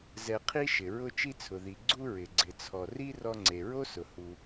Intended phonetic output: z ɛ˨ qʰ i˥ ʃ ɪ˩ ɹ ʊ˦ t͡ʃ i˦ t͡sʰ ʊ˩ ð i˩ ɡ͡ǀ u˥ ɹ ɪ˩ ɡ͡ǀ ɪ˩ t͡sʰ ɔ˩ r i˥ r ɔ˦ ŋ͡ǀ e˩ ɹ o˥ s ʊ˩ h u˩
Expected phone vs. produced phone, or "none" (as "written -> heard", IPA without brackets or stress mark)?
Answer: none